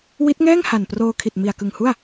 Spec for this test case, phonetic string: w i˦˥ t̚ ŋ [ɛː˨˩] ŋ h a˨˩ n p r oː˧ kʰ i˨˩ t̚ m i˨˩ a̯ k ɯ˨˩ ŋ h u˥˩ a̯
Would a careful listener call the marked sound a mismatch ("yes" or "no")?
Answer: yes